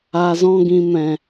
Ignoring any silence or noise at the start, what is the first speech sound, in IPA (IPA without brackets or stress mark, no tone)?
a